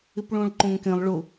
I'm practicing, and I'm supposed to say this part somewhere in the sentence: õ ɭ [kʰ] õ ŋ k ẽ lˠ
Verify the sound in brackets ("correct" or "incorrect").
incorrect